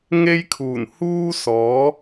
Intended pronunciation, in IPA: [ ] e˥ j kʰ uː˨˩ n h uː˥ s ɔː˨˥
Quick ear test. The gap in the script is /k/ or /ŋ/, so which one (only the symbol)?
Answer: ŋ